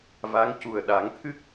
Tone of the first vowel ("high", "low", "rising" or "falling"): rising